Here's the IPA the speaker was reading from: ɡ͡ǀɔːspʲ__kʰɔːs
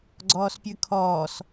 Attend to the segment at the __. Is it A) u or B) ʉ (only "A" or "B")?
B